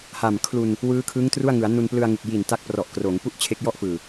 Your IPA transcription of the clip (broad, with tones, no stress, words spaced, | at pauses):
ha˨˩mkʰlu˧n | wɯː˦˥kʰɯː˦˥ŋtru˥˩a̯ŋɯ˩˦a̯ nu˧nplɯ˧a̯ŋɯ˨˩k̚ ji˨˩nta˦˥k̚prɔ˨˩ʔ kroː˩˦ŋ pu˥˩ʔt͡ɕʰe˦˥k̚jɔ˥˩ʔ fɯː˨˩